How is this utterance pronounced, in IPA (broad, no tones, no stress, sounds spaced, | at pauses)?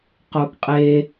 q o ɡ qʼ e